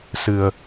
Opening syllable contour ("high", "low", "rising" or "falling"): low